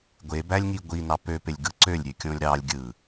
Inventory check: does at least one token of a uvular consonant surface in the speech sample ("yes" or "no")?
no